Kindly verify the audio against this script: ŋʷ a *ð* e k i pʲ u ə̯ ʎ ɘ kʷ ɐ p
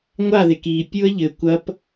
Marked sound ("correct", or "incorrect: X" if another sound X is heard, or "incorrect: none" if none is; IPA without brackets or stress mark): correct